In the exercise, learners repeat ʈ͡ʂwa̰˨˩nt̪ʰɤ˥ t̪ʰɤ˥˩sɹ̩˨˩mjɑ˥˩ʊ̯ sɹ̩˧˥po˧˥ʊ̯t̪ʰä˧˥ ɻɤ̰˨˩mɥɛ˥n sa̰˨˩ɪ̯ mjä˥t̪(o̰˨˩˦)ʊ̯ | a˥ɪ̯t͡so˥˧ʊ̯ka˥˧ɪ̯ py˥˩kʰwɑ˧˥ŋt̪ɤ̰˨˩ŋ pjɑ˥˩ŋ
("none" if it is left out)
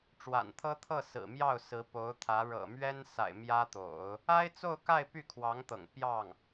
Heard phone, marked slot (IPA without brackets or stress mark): o̰˨˩˦